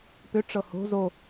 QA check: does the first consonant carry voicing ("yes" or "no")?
no